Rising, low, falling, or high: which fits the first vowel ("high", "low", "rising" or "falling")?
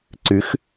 rising